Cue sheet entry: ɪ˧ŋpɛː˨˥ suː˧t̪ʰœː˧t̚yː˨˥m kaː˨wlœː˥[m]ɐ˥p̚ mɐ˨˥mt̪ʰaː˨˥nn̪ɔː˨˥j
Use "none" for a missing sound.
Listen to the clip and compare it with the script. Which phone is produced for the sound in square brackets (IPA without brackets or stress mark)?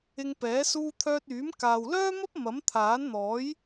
m